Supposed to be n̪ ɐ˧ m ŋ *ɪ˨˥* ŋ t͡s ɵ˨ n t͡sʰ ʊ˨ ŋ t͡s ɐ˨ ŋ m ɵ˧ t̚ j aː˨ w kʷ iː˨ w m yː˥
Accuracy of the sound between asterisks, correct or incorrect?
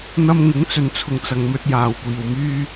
correct